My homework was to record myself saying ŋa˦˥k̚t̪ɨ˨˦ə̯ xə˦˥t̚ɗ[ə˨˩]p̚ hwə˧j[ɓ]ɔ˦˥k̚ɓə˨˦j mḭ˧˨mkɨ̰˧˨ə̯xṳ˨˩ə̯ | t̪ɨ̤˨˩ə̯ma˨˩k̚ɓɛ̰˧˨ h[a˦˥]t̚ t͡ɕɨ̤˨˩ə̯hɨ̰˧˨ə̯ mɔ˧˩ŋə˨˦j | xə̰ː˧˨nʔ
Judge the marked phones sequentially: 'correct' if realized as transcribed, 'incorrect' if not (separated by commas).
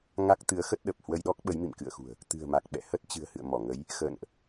correct, incorrect, incorrect